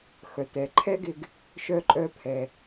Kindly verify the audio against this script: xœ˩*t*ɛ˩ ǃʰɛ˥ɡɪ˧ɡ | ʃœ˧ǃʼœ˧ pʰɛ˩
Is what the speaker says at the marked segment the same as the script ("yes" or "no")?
yes